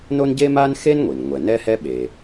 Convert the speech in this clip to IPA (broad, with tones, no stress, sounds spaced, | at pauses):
n o˥ n ɟ e˥ m a˥ n x e˥ n ŋʷ i˩ n ŋʷ ɛ˩ n ɛ˥ h ɛ˥ ɓ e˩